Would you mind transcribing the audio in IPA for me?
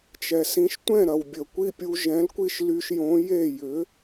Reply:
t͡ʃ ɛ˩ s ĩ˧ ʃ tʷ ɛ̃˥˩ ɾ ɐ˩ w bʲ ə˩ kʷ i˥˩ pʲ u˧ ʒ ɛ̃˩˥ l kʷ i˥˩ ʃ l y˧ ʃ j õ˩˥ j e˥˩ j ʏ˩˥

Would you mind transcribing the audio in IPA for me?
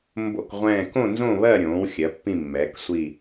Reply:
m b o̰˦˨ k ʁʷ ɛ̃ː˦˨ k õ˦˨ n z õ˦˨ β ɜ˦˨ ɾʲ õː˩˧ w xʲ ɜ˩˧ pː ĩ˦˨ mː ɛː˩˧ k sʷ i˦˨

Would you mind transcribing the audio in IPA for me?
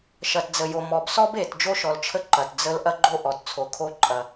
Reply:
ʃ ɐ˨ t d͡z ə˨ j o˨ m ɔ˨ b s ɔ˦ b e˨ t d͡ʒ o˦ ʃ ɔ˨ l t͡ʃʰ ə˦ ǃ ɐ˨ t d͡z ə˦ l ʔ ɐ˦ ɡ͡ǃ o˦ ʔ ɔ˨ t t͡sʰ o˨ kʰ o˦ ǃʼ ɐ˨

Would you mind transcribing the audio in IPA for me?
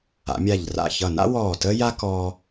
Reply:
a̰˩˧ mʲ a˧˩ ʎ r a̰˧˩ ç ʌ˧˩ n a̰˥ w ɔː˧˩ t əː˥ j a˥ k ɔː˧

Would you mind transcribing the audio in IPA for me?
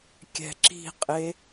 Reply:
kʲ ɛ̤ ǁ i̤ qʼ e

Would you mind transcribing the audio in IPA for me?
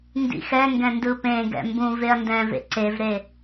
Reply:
n d ḭ x ɛ ŋ ɡ ɛ̃ n d ɯ p ẽ ɡ ɛ̰ m b ũ v e ɐ̯ n d ɛ̃ v ḛ ǀ e v ɾ e

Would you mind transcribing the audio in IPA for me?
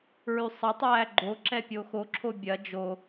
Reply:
ɹ y sˤ ɐ tˤ æː ɡ͡ǃ o ǁ ɛ pʲ o x o ǁʰ o bʲ ɐ d͡ʒ o

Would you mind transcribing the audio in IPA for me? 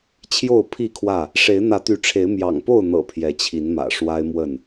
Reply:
t͡ɕʰ j o˥˨ ʊ̯ pʰ i˥˨ kʰ w ä˥˨ | ʂ e˨˦ ɪ̯ n̪ ä˨˦ t̪ y˨˦ ʈ͡ʂʰ e˨˦ ɪ̯ m j ɑ̰˨˩ ŋ p o˥˨ ʊ̯ n̪ ɤ̰˨˩ pʰ j ɛ˨˦ t͡ɕʰ i˨˦ n m ä̰˨˩ ʂ w a˦ ɪ̯ m w ə˥˨ n

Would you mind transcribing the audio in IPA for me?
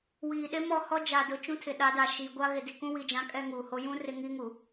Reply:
w iː˨ ɗ e˦ m ɔ˦˨ h ɔ˦ d͡ʒ a˨ d ʊ˨ t͡ʃ ũ˦ tʰ ɪ˨ ɗ a˨˦ d a˨ ʃ iː˨ ɡʷ a˦ ɣ ɪ˨ d i˨ k ũ˦ w i˨ d͡ʒ ã˨˦ kʼ ɛ˦ ŋ uː˨ h o˦ j ũ˦ r ɪ˦ ŋ i˦ ŋ u˨

